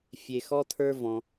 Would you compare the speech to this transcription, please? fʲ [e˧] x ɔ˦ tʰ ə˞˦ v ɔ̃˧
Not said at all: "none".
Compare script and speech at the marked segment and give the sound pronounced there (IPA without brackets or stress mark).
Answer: e˧